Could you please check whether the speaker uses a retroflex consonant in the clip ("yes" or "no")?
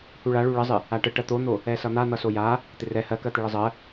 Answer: yes